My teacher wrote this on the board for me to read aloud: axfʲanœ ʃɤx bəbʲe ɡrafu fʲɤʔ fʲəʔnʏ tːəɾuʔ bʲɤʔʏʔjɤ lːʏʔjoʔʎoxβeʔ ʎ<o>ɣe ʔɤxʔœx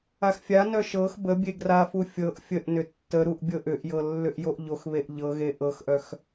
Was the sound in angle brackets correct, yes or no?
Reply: no